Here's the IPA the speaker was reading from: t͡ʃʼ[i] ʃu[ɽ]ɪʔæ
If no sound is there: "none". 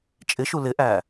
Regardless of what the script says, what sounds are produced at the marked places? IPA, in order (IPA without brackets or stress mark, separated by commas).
ɪ, l